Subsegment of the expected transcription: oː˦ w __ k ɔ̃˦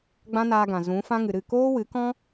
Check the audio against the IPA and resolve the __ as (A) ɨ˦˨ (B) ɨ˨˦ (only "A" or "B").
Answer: B